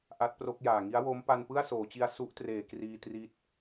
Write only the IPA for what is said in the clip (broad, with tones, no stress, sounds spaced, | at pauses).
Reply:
ʔ a˦˥ t̚ p r o˦˥ k̚ j aː˨˩ ŋ i˦˥ a̯ w o˦˥ m p a˧ n p ɯ˥˩ a̯ s oː˩˦ t͡ɕ i˧ a̯ s u˦˥ ʔ t r eː˩˦ k r iː˧ t r i˦˥ t̚